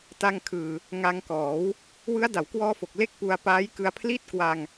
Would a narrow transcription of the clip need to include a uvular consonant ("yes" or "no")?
no